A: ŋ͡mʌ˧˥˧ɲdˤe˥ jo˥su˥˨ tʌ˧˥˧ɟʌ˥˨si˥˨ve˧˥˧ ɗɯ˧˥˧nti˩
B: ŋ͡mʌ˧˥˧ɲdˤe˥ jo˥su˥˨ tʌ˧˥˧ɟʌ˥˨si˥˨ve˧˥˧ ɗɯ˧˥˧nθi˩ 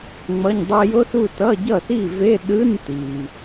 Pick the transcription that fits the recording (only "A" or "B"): A